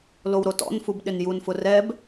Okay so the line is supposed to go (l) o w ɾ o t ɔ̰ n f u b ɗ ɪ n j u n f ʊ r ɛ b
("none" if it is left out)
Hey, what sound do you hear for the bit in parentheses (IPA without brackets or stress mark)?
l